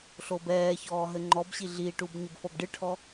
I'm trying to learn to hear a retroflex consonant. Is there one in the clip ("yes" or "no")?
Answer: yes